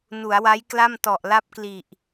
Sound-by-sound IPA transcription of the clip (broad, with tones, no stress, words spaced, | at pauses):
nu˩˦a̯wa˦˥jkla˥˩m tɔ˨˩ʔla˥˩p̚kli˨˩ʔ